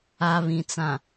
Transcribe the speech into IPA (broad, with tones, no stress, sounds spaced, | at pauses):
a˨ β ĩ˨ t͡s ã˨